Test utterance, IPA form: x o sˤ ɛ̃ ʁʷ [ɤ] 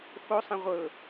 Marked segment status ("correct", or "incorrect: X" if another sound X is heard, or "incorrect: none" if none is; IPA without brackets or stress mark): correct